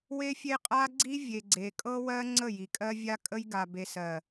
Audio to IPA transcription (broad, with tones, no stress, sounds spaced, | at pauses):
w e˦ fʲ e˦ qʼ a˦ ɡ͡ǀ i˦ vʲ e˨ ɡ͡ǀ e˨ kʼ ɤ˦ w ɜ˦ ŋ͡ǀ ə˦˨ j i˨ kʼ ɜ˦ vʲ a˦ kʼ ə˦ j ɡ a˨ b e˨ s ɜ˨